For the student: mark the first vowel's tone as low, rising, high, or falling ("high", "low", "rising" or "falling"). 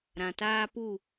low